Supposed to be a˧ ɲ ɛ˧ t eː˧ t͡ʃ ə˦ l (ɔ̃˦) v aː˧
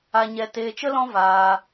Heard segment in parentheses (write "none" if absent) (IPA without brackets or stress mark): ɔ̃˦